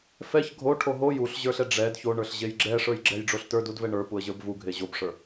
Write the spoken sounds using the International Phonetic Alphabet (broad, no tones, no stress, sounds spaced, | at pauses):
f ɛ ç ɡʱ o ʈʰ o ɦ o j u ɬ ʑ ə˞ ɬ ɛ ɖ͡ʐ ɛ d ç o ɳ ə˞ ɬ ʑ e j ɡ͡ǁ ɛ ʂ ə˞ j ɡ͡ǁ ɛ j ɖ͡ʐ o ɬ t ə˞ d u d v ɛ ɳ ə˞ p u ə̯ ʑ ə˞ b v u ɡʱ e ʑ o b ʂ ə˞